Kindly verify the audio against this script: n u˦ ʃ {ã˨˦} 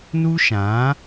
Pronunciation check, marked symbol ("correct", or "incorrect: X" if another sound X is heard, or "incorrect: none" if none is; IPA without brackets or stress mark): correct